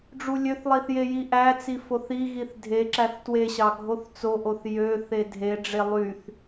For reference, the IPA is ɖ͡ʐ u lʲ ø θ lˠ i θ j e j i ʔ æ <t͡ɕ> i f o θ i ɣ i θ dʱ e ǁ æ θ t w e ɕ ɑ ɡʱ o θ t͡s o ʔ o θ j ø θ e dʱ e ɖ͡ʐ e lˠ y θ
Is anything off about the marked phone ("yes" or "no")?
yes